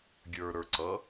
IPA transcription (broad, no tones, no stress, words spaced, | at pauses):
ɡʲə˞ɾə˞ ǀʌ